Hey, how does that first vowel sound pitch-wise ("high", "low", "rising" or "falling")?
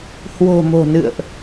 low